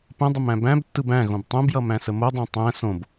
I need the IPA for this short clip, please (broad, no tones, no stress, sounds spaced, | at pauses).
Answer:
p ə̃ dˤ ə m æ̃ b æ̃ b tː ɯ b æ̃ ɣ õ b tˤ õ b j ʌ m æ̃ s ə m o dˤ æ̃ tˤ æ̃ s õ b